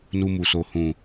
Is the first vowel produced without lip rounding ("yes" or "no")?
no